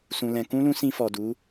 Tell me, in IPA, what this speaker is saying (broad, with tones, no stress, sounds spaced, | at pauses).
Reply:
s ũ˨ l ɛ̃˨ k ũ˧ l ũ˧ s ĩ˧ f ɔ˨ d u˨˦